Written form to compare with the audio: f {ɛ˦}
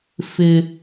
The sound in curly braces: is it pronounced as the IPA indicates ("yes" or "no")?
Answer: no